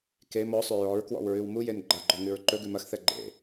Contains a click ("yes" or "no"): yes